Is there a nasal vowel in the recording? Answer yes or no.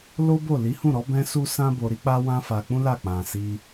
yes